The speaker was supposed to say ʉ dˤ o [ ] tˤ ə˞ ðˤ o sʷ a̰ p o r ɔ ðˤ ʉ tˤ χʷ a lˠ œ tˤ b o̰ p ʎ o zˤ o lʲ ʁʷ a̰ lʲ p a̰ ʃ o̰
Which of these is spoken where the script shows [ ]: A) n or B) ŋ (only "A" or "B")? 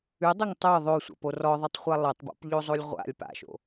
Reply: B